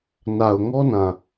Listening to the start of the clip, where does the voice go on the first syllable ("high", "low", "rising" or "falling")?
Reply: low